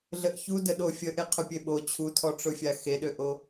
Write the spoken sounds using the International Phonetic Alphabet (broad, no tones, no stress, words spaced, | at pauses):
ɮəʔçudə ɗofʲə ʔeqʰʊpʲeɓo t͡ɕʰutʰɔʈ͡ʂʊfʲa xeɗøʔo